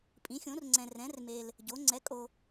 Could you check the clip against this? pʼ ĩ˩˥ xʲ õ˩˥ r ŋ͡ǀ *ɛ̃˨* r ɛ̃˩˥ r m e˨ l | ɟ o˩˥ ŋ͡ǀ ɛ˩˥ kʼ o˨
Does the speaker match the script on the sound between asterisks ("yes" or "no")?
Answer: yes